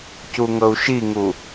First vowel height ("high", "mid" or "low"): high